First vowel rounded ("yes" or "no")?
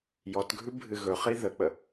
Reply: yes